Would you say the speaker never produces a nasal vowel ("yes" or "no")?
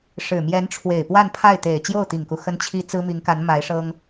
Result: yes